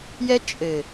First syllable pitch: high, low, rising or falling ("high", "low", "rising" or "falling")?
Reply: high